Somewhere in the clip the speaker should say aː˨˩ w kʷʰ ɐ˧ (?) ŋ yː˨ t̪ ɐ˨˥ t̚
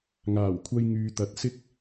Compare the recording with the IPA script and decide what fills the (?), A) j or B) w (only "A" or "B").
A